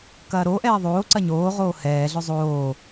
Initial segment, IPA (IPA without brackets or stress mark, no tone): k